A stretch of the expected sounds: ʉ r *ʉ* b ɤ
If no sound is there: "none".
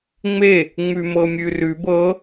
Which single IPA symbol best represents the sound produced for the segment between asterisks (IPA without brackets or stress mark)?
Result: ʉ